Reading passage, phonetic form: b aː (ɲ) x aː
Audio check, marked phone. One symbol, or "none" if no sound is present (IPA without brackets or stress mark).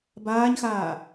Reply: ɲ